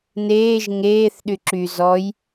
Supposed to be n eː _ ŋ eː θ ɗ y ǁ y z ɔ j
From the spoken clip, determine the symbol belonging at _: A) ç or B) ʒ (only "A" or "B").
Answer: B